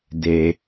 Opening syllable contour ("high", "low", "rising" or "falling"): low